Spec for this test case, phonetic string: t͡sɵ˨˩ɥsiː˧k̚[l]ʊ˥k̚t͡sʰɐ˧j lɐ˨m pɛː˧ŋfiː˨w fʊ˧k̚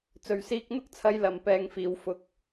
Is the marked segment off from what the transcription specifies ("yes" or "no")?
yes